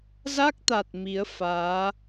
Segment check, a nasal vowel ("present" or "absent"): absent